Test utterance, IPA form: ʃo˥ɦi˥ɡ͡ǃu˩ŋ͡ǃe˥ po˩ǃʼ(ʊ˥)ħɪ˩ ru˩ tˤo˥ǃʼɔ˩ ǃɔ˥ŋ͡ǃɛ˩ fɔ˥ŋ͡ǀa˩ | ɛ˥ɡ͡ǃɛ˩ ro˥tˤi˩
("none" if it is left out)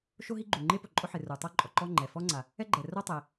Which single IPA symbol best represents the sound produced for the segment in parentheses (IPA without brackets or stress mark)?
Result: ʊ˥